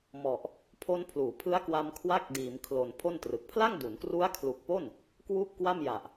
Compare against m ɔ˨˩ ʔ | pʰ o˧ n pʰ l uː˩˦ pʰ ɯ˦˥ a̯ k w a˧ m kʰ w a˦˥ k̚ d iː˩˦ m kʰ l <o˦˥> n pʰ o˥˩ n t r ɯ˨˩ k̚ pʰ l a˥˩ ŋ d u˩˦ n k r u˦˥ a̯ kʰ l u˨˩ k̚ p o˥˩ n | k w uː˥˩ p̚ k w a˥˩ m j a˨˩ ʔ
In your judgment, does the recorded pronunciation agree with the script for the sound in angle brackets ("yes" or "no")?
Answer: no